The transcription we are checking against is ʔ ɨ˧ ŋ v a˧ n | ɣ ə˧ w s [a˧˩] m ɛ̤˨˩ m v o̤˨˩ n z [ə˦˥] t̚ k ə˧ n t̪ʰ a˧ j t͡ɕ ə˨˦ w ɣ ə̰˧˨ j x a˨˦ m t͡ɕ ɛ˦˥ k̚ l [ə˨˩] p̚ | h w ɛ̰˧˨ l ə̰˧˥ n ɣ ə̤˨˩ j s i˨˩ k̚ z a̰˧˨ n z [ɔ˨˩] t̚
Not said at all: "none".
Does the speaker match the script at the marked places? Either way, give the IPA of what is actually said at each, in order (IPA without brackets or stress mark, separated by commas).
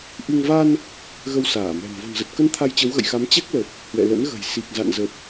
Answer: aː˧˩, ə˨˩, ə˨˩, ə˨˩